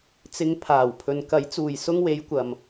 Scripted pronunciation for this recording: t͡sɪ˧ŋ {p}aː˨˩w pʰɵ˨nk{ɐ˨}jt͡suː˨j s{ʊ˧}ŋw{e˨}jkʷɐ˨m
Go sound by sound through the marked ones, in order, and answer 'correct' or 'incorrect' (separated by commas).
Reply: incorrect, incorrect, correct, incorrect